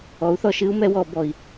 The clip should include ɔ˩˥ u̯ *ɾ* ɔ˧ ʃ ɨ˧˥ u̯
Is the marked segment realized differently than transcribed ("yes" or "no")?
yes